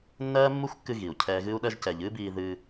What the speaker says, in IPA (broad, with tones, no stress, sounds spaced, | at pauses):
nː ɜː˦ mː u˦ xʷ kː ɨ˧ ɣ i˨ u̯ cʰ ɛː˦ ɣ ɨ˧ u̯ ɗ ɜ˧ ʒ c ɛ˨ ʎ ɨː˦ b iː˧ ð ɨː˧